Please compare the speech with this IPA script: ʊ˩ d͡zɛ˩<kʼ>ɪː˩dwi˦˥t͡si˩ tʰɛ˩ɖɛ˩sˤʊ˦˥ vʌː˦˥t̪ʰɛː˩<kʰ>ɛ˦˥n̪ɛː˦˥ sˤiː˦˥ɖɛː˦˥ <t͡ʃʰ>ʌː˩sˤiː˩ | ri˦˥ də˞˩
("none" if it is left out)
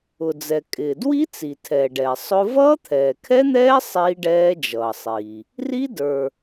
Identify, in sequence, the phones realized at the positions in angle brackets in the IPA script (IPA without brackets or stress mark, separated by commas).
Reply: kʼ, kʰ, d͡ʒ